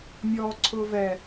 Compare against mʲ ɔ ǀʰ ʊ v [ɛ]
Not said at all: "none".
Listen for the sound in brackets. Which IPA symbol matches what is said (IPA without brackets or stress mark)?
ɛ